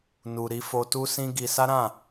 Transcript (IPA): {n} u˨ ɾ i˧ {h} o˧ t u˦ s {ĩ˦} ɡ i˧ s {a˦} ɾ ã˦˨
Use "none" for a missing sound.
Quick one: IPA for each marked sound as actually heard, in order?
n, f, ĩ˦, a˦

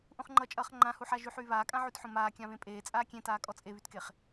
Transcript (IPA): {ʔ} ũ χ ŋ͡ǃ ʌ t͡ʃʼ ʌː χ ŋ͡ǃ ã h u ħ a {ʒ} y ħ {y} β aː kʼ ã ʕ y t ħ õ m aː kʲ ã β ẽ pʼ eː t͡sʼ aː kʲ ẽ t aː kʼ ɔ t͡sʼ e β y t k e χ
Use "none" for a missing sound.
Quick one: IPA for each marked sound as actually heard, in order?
ʔ, ʒ, yː

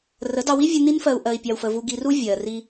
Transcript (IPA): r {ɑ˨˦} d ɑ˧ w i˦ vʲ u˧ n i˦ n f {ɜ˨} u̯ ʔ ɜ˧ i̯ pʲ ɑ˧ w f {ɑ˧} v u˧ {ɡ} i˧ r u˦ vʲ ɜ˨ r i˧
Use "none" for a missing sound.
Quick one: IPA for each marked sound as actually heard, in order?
ə˨˦, ɜ˧, ə˧, ɡ

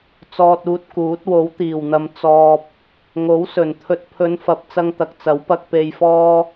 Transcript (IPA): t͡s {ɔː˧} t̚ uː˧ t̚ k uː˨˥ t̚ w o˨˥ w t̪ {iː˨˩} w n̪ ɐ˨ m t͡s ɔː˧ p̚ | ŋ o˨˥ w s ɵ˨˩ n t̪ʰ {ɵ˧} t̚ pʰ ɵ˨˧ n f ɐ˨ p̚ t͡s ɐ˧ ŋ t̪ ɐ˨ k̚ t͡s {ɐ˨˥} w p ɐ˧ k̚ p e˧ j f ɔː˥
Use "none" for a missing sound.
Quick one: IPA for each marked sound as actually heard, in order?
ɔː˧, iː˨˩, ɵ˨, ɐ˨˥

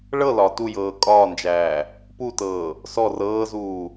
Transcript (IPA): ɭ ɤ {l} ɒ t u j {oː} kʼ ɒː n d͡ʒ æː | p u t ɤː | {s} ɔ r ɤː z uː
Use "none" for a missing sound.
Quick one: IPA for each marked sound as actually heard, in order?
l, ɤː, s

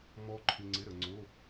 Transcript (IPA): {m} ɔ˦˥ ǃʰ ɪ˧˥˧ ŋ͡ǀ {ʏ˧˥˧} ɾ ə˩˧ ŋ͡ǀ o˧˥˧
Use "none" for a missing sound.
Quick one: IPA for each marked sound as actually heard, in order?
m, ɪ˧˥˧

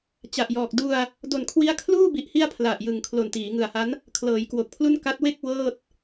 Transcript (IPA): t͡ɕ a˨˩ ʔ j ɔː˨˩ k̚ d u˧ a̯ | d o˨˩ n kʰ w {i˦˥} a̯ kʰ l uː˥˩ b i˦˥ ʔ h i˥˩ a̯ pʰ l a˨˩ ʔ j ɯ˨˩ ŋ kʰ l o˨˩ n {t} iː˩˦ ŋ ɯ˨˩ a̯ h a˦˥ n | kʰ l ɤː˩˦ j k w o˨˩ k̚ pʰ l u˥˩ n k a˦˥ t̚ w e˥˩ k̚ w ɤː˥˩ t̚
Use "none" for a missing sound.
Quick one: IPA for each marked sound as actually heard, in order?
i˦˥, t

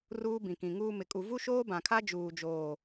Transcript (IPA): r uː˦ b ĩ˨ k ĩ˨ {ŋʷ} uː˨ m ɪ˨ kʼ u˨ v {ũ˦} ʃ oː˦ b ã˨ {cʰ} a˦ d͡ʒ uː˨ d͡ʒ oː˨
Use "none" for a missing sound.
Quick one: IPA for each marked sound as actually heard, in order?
ŋ, u˦, kʰ

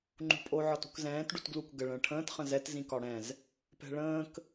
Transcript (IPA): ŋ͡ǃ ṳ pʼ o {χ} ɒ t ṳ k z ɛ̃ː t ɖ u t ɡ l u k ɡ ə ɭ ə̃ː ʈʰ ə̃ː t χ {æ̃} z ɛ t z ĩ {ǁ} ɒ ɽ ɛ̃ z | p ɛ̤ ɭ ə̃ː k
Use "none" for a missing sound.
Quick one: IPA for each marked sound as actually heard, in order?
ʕ, ə̃, k

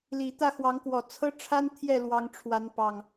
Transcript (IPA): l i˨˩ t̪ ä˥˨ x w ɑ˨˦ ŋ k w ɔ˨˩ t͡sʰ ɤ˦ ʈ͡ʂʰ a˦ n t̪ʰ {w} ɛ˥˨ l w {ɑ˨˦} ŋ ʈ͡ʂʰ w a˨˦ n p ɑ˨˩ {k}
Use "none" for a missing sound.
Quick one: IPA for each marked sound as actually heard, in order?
j, ɑ˨˦, ŋ

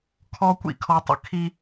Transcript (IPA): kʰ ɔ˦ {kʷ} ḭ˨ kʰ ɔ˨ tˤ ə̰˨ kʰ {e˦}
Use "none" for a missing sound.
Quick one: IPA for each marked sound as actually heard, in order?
kʷ, i˦

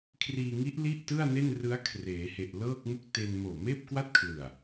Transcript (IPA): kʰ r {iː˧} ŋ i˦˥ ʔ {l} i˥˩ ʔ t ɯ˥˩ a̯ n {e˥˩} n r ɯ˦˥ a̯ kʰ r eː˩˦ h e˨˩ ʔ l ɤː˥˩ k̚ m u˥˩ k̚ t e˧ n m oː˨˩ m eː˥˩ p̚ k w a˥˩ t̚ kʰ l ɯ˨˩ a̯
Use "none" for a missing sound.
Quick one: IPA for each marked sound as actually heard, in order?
iː˧, l, e˥˩

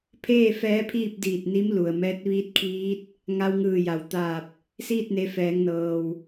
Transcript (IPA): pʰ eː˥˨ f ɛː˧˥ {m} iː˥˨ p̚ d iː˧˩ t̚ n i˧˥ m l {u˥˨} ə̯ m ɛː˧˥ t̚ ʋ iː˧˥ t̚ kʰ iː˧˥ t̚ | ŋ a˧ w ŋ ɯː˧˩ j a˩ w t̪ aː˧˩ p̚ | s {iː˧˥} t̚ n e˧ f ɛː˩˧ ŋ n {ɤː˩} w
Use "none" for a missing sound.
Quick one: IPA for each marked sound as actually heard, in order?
pʰ, u˩, iː˥˨, ɤː˩

